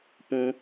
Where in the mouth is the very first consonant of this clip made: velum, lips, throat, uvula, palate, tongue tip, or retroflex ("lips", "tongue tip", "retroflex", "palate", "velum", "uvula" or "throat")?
lips